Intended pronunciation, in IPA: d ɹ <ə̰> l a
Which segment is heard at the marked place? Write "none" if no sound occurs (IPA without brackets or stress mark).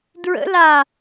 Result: ə̰